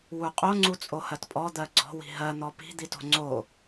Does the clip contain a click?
yes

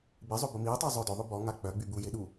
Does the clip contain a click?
no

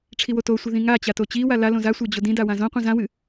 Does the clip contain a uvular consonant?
yes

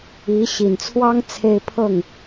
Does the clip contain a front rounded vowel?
no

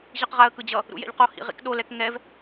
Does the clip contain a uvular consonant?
yes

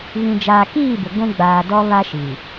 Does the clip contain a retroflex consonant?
no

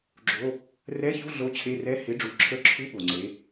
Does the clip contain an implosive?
yes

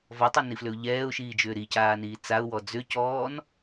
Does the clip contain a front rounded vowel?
yes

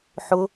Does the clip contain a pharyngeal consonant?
yes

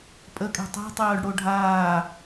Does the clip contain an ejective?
yes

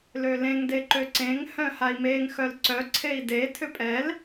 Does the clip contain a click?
yes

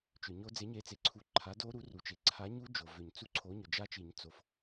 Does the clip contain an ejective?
no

